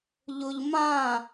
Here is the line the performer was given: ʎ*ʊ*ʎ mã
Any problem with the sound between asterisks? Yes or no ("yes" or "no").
no